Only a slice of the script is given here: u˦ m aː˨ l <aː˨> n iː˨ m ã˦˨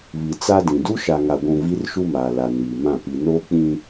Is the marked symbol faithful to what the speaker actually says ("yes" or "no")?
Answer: no